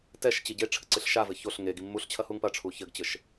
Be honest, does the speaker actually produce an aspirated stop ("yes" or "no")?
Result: yes